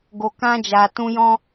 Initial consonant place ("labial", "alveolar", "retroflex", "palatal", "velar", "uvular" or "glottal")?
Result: velar